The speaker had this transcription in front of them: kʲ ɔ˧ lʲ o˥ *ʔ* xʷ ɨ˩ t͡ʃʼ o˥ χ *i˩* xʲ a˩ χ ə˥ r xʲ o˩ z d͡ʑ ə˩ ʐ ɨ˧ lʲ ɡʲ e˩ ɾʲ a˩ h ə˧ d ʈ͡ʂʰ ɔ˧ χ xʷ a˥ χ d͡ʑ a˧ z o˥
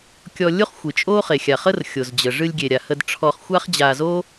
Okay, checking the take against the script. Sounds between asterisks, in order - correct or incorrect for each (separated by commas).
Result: incorrect, incorrect